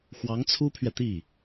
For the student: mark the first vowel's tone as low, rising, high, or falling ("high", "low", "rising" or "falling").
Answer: rising